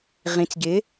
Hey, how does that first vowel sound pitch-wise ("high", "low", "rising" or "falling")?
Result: rising